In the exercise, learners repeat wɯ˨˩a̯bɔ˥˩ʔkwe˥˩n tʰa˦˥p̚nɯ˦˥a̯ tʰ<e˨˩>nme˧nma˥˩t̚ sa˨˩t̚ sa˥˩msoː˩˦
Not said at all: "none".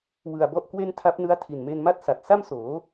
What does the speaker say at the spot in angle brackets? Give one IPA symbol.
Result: i˨˩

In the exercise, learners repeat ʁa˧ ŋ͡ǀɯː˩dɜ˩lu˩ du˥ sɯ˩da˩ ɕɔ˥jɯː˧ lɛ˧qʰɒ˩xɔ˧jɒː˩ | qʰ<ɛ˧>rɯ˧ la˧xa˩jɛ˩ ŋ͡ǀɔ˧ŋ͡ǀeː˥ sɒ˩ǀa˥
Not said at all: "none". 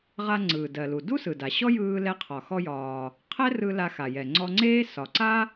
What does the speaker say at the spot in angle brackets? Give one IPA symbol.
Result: ɛ˥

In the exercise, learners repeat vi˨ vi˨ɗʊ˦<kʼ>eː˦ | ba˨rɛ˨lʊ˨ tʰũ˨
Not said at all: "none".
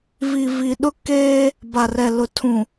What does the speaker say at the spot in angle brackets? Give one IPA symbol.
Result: k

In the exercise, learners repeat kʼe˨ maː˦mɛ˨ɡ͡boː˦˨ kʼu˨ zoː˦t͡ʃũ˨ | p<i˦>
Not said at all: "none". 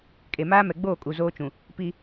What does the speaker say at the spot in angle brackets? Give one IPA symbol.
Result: i˦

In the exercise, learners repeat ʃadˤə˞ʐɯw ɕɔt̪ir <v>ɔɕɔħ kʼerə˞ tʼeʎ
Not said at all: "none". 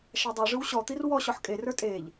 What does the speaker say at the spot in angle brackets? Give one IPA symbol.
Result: w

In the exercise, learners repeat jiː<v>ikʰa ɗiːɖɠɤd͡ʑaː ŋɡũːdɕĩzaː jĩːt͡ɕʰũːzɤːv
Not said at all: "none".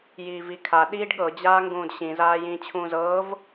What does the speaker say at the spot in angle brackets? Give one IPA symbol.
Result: v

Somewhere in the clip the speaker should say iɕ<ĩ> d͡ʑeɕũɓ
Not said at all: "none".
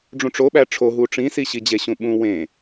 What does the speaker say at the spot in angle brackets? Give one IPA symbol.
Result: i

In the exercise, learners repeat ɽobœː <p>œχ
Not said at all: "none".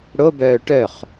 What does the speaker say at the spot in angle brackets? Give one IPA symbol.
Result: ʈ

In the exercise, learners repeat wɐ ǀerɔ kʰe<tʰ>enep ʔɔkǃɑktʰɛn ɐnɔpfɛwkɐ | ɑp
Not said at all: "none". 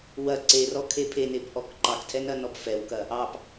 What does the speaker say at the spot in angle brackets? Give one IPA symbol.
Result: pʰ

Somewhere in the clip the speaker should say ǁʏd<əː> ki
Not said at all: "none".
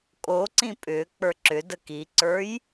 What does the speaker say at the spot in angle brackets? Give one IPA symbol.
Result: ə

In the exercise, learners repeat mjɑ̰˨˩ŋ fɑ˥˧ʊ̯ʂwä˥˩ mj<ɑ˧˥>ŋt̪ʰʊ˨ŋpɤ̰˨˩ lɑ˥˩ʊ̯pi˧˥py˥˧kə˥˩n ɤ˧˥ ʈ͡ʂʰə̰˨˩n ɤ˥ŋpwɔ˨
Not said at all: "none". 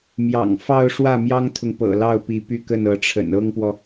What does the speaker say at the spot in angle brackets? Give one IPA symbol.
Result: ɑ˥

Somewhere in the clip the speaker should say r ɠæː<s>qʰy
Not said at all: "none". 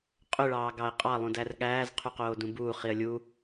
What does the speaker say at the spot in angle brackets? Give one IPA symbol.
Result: z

